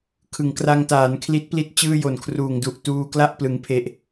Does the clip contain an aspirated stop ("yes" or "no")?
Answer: yes